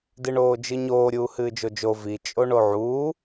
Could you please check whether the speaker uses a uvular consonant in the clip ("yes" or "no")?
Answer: no